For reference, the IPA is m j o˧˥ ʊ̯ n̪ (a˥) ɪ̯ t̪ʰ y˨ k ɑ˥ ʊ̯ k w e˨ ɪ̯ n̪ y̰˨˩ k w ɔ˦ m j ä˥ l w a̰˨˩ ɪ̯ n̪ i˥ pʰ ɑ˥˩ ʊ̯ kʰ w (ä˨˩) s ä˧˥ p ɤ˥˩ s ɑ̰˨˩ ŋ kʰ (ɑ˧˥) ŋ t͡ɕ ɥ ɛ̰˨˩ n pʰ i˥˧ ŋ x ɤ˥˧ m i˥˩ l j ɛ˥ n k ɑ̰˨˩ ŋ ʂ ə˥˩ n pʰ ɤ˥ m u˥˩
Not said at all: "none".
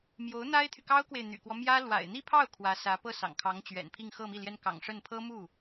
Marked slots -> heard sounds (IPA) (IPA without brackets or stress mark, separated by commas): a˥, ä˧˥, ɑ˧˥